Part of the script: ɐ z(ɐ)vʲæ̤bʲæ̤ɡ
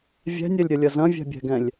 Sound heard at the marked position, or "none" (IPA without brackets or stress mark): ɐ̃